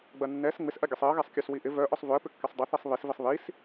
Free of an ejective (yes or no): yes